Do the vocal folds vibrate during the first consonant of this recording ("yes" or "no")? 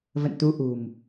yes